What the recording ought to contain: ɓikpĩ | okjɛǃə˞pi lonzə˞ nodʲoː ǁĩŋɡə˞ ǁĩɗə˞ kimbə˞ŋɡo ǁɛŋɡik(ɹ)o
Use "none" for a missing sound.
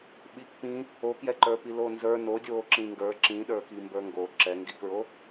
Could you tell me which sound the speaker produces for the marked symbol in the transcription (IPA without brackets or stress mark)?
ɹ